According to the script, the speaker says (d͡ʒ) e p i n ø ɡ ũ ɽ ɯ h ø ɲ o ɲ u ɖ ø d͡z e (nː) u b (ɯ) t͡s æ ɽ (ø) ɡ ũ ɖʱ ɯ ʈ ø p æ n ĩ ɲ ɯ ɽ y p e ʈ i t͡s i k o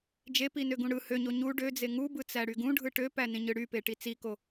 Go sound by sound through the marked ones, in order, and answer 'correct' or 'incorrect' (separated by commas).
correct, incorrect, correct, incorrect